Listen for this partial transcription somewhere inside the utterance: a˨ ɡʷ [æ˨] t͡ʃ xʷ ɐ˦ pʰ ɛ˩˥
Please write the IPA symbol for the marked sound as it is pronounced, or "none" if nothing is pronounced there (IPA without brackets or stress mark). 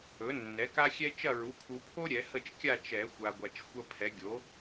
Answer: a˨